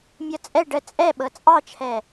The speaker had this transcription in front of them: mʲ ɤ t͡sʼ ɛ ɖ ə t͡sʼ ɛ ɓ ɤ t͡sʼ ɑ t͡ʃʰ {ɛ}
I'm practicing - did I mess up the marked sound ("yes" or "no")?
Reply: no